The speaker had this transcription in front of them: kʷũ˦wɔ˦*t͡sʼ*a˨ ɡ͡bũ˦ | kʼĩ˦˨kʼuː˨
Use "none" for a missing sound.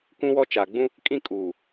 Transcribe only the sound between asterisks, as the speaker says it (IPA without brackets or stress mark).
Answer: t͡ʃ